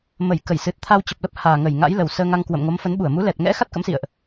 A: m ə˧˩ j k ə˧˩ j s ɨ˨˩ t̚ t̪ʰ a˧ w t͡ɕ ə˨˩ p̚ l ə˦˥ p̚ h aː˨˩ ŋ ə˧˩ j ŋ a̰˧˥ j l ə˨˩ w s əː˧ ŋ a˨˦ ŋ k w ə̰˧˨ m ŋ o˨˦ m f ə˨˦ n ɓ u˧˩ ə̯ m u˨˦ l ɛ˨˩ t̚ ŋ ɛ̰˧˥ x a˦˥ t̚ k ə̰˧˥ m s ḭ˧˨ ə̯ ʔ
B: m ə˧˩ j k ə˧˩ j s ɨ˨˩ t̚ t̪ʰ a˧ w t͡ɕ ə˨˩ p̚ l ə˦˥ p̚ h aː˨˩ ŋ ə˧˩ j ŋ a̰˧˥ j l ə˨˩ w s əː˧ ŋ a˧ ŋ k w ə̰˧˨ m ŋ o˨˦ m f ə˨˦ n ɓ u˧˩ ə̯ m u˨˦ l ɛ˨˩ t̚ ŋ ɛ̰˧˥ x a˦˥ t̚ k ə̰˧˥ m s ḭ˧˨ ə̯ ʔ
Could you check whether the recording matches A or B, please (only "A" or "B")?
B